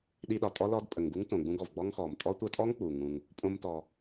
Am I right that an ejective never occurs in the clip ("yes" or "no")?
no